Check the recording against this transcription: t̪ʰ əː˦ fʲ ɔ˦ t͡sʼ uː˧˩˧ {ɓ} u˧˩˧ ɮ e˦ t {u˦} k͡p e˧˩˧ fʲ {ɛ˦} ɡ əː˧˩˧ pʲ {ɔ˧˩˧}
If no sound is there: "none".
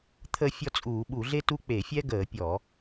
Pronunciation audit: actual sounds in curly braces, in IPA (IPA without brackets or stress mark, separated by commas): ɓ, u˦, ɛ˦, ɔ˧˩˧